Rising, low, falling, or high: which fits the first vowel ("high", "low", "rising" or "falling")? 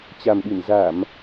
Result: low